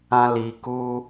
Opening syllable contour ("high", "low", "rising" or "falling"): high